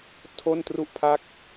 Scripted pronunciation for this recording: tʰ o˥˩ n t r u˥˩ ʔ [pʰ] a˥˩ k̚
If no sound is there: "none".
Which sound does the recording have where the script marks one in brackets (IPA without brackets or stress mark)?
pʰ